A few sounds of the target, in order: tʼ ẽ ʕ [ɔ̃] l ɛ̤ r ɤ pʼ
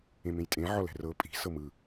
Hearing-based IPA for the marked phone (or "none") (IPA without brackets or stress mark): ɔ